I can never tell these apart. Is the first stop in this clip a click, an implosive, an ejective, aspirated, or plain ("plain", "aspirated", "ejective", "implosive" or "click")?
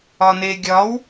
plain